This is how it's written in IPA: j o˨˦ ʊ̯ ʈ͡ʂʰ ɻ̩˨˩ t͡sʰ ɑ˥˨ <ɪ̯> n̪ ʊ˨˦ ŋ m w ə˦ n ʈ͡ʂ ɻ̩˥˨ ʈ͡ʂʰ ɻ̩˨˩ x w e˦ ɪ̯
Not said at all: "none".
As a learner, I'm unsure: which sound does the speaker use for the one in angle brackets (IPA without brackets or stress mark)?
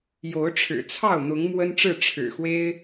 ʊ̯